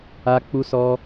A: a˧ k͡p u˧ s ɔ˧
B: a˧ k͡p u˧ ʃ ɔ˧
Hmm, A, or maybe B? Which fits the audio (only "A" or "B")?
A